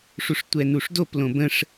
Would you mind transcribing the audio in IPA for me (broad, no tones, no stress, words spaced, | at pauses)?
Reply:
ʂuʂtʷɛnuʂdop lõbə̃ʂ